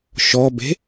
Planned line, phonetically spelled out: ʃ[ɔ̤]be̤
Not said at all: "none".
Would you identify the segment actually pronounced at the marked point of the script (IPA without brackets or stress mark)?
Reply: ɔ